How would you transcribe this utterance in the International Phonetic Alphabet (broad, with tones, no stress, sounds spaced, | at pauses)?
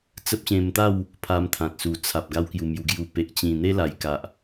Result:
t͡s ə˦ p̚ ɕ ẽ˧ m t̪ a˥˧ w | pʰ a˧ m t̪ʰ ã˨ t̚ s u˨˩ t͡sʰ a˨ p̚ ɡ a˧ w k j u˨˩ m j u˨˩ ɡ j u˨˩ p e˨ ʔ t͡ɕ ĩ˨˩ n̪ e˦ l a˨˩ j k a˨ ʔ